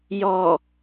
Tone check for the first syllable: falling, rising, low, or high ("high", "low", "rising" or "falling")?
low